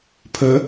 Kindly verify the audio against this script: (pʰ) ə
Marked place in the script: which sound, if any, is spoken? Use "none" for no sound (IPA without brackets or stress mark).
pʰ